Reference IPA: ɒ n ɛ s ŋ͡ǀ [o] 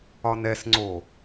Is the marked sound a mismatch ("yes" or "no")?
no